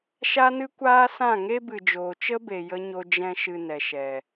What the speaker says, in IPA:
ʃ a˦ n ɨ˦ kʷ aː˦ s ã˦˨ ŋ e˦ b ɨ˨ d͡ʒ oː˨ t͡ʃ ə˦ b e˨ j ə˦ ɲ o˧ d͡ʒ ɛ̃˧ ʃ ɨ˨ n ɛ˨ ʃ ɛ˨

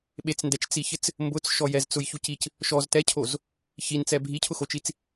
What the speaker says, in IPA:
ɓ e t͡s n d ɛ t͡ʃ t͡s i ç ɪ t͡s | m b ʊ t͡s ʃ ɔ j ɛ z t͡s ʊ j ç u c i c | ʃ ɔ z t ɛ cʰ o z | ç i n t͡s ɛ bʱ i cʰ ʊ x o t͡ʃ i t͡s

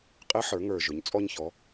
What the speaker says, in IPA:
qʼ ɪ˧˥ ħ ə˞˩˧ ŋ ə˞˨˩ ʒ ʊ˩˥ ɲ t͡sʼ ɔ˥ ɲ ç ɔ˧˥

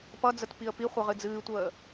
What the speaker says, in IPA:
p ʌ d͡z ə t p i ə̯ p i χʷ ʌ ʁ ɨ d͡z ɨː tʷ əː

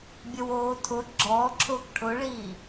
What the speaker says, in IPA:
bʲ ə w oː tʰ ʊ ɡ͡ǁ ɔː ǁʰ ʊː k ʈʰ ʊ ɭ iː

